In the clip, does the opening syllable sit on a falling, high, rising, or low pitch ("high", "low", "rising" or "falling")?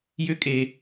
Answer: high